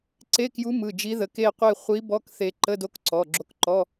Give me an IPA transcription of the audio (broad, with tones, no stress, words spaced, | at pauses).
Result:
ǀe˧˥˧kju˧˥mɯ˩˧˩ d͡ʒi˧˥ðə˩˧˩ke˥˧qʷe˥˧ χʷi˧˥bɔ˧˥˧kθe˧ ǃə˧˥˧do˧˥kǀɔ˩˧˩ ɡ͡ǁo˧˥kǃɔ˧˥˧